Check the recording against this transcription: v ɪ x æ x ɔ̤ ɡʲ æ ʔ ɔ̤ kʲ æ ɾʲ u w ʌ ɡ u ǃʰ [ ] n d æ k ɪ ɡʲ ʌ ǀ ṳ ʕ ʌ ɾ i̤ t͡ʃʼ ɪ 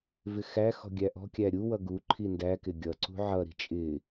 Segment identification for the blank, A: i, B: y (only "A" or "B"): A